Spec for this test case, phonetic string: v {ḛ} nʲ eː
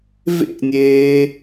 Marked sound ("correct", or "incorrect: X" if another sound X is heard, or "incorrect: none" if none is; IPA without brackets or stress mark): correct